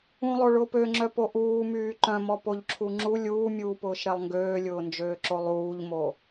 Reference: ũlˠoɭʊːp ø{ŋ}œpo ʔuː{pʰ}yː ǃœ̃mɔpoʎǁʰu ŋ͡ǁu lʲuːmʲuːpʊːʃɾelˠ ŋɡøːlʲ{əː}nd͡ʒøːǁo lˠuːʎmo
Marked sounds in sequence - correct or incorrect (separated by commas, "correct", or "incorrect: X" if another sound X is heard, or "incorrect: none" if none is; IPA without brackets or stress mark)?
incorrect: ŋ͡ǁ, incorrect: m, incorrect: ʊː